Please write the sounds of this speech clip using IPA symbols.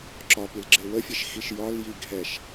ǁɒpilɡ͡ǁe wəfʲeʃxiʃ jɒlji ɡʱɛʃ

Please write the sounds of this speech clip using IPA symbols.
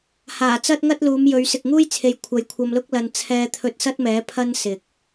haː˨˩t͡sɐ˥t̚ŋɐ˥t̚luː˨˧m jɵ˨˧ɥ sɪ˨k̚ŋuː˥jt͡sʰe˨j kʷʰɐ˨˧jkʷʰɐ˧mlʊ˥k̚ lɐ˧n t͡sʰɛː˧t̪ʰɵ˧t̚ sɐ˥t̚mɛː˨˥ pʰɐ˥nsɪ˨k̚

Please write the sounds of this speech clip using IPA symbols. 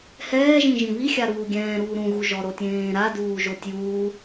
hɛːʒĩ ʒĩβi xʲaɾuːɡʲɛ̃ːɾuː ɾũɣuʒɔ ɾotʲẽːɾa duːʒotʲjuː

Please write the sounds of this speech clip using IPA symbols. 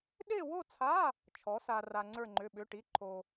ɗe˥˧wo˥˧t͡sʰa˧˥˧ | t͡ʃʰɔ˨˥sa˧ra˧ ŋ͡ǀə˞˥˧ŋ͡ǃʏ˧˥˧ɓʏ˧˥˧ʈi˧˥˧ ǃʰo˧

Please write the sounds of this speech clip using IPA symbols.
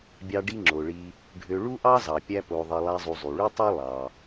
bʲɑ˦ɖi˥ ŋ͡ǁo˩ɭi˨ | ɖʱø˨ ɭu˥ʔɑ˥zɑ˩ pʲæ˦po˨ðˤi˨ lˠæ˦zˤu˨ zˤy˩ɭy˥tˤu˥ lˠɑ˩

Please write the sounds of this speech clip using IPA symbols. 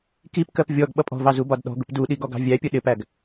kipkɜp vʲɔɡ ɓʌpʼɔ̤vɑ zubɒdɗɔ̤ɡʊp duɗiɡ ɔɡɑ̤vʲæpʲə ɗɪpæɡ

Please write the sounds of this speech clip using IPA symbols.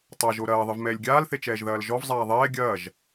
tˤa ʒoɾɐːðˤɨv mɛːlʲɡʲaːlθet͡ʃɛːʒ ðɐːlʒɔv zˤaːðˤɛː ɡʲɐːʒ

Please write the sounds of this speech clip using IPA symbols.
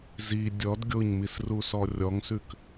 zi dʲɔd ɡʲoɲmisrusɔ rʲɔŋsʉk

